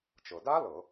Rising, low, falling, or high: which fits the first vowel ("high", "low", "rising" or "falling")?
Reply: low